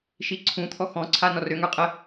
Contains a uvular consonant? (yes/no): yes